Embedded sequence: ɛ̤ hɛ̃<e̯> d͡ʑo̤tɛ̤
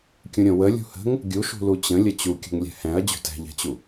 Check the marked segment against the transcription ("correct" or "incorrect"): incorrect